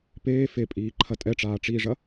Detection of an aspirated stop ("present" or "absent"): present